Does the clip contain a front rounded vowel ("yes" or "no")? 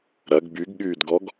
yes